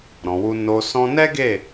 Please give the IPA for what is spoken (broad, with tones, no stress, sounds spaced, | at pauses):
ɾ ɔ̃˨ w u˧ n o˧ s ɔ̃˧ n ɛ˦ ɡ e˦˨